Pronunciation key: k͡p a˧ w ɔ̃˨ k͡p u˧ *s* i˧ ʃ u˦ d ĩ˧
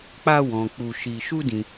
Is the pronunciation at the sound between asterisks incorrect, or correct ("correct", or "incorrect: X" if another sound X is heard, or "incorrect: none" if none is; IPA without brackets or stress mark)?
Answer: incorrect: ʃ